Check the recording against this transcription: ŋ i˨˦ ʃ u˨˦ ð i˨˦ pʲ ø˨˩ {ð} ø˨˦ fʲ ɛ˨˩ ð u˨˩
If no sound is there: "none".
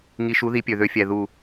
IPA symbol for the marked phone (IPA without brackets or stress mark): ð